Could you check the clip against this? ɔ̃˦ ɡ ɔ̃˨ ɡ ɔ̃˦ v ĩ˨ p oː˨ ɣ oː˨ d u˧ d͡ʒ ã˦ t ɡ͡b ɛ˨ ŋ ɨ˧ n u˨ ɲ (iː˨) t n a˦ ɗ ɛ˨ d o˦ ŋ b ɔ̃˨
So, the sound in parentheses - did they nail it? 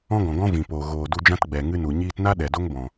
no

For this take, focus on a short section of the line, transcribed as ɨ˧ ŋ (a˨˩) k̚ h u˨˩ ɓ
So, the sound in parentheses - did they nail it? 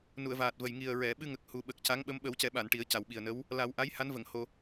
no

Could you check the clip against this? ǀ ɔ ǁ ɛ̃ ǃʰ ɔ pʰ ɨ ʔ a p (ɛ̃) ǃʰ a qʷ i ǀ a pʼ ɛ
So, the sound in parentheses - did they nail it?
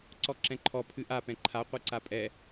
yes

